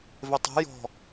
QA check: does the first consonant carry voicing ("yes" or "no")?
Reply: yes